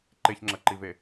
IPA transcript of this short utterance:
ǃeçŋ͡ǁɐǃive

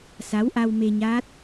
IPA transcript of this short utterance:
sa˨˦wʔa˧wme˧ɲaː˦˥t̚

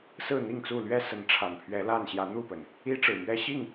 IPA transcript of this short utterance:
sɹ̩˥˨n̪i˥˨ŋt͡su˥˨ lɥɛ˦sə˨˦n ʈ͡ʂʰa˨˩npʰɥɛ˨˦la˥˨n ɕjä˨˦n̪u˥˨pə˩n | i˦ʈ͡ʂɻ̩˨˩mɥɛ˦ ɕi˥˨ŋ

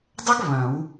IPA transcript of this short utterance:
dˤɐ˥ɡ βɐ̃˨˩˦w

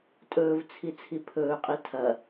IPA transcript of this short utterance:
tʼɵːvt͡sʰi t͡sʰipʰɵːqʼi tʰɐ

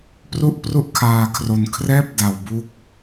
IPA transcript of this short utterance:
pru˥˩ʔpru˥˩ʔ kʰaː˧kʰro˧n kʰrɛː˥˩p̚ da˧wbu˥˩k̚

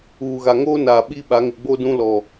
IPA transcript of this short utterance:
uː˨ɣa˨ŋoː˦naː˨ ɓi˦ ɓa˨˦ŋɪ˨ ɡ͡bo˦dũ˦ lɔ˨

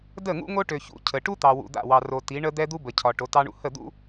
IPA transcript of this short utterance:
də˦˨ ŋṵ˦ŋo˦ʈø˨ çṵ˦cʰə˨ ʈu˦ t̪ɑ˨wṵ˨ d̪a̰˦˨wɑ˨ro˨ ti˨˦ ɳə˦ d̪ɛ˦d̪u˦ bə˨cʰɒ˨ ʈo˨˦tɑ˦ɳṵ˦ hə˦˨d̪ṵ˦

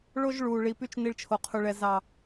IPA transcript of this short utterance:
ɭo˦ʒɭuː˨ ɭi˨py˧t͡ʃ ni˧ɭt͡ʃʰo˨qʰu˨ɭɛ˨ zɑ˨

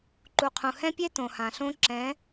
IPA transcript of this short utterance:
ǃu˨qʰũ˨hɛ̃˦pʲe˦ tõ˨hã˨ɬõ˦ ǁɛ̃˨˦

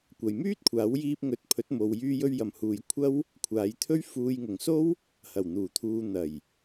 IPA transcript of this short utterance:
kʷɐ˨jmyː˥t̚kʷʰaː˨˥wjiː˧p̚ ŋɵ˨˥t̚pʰɵ˨˥t̚mo˨w jyː˧jɵ˧ɥjɐ˨˩mhuː˨j kʷʰɐ˥w | kʷʰaː˨˥jt̪ʰɵ˥ɥ fuː˨jŋʊ˨˩ŋso˥w | hɐ˨˩wn̪uː˨˩t̪ʰuː˨ n̪ɐ˨˩j

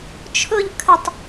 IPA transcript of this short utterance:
t͡ʃʰʊʎ kʰətˤ

